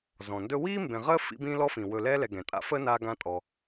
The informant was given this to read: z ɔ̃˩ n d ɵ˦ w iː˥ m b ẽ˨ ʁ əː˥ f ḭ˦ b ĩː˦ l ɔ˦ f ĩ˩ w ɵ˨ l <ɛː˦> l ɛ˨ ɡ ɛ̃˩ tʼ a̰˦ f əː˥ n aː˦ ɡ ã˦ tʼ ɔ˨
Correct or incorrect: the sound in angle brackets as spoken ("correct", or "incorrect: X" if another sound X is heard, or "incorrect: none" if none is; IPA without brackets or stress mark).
correct